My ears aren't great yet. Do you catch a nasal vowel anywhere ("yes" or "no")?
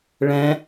yes